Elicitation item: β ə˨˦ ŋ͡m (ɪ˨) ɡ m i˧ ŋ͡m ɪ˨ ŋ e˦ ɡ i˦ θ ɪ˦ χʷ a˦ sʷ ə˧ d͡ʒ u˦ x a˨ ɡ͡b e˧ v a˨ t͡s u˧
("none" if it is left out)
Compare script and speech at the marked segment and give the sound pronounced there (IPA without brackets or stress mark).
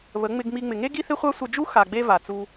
ɪ˧